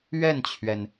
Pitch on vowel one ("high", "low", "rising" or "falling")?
falling